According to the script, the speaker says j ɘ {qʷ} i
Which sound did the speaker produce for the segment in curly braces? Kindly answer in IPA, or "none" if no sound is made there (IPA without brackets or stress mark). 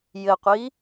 qʷ